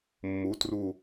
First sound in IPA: mː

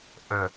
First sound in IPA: ʔ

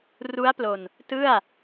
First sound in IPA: r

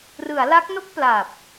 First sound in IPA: r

